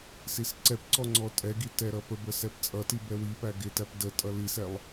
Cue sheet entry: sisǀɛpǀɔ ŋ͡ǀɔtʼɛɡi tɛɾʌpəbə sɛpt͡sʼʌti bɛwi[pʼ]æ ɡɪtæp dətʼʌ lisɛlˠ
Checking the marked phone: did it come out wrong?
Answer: yes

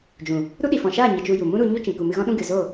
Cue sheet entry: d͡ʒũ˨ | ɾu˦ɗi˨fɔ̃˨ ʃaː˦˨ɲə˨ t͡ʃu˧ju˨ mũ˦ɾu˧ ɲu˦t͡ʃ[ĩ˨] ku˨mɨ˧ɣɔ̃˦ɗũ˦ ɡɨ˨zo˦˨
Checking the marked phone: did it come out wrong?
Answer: no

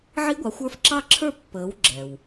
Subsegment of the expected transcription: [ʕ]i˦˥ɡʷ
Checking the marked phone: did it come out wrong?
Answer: no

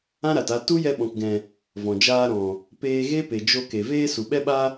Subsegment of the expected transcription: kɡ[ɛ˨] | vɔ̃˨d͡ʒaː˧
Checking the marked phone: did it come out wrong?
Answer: yes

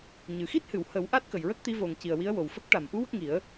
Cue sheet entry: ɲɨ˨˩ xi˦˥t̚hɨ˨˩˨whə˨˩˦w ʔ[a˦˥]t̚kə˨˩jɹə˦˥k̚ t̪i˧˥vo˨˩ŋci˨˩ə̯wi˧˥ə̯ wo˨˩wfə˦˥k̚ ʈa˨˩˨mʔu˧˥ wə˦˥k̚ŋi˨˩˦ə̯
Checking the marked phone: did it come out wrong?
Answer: no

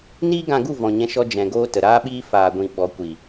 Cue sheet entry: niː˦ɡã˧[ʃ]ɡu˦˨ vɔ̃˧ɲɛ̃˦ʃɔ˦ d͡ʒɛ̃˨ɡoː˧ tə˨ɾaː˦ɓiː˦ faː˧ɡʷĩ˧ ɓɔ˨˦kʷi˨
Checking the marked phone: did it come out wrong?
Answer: yes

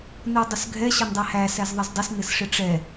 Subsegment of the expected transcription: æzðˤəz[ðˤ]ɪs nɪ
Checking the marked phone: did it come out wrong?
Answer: yes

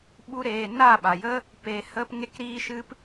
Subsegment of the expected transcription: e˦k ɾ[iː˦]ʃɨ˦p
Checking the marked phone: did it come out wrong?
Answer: no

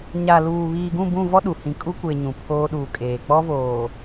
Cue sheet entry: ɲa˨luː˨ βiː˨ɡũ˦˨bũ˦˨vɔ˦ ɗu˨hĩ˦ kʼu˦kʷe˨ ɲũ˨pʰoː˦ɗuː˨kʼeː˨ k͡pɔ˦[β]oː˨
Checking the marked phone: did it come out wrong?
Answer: yes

